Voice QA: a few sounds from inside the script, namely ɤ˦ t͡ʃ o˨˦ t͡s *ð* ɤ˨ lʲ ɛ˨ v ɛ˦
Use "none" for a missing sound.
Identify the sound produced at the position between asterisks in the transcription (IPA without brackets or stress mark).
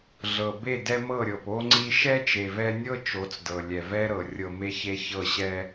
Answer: d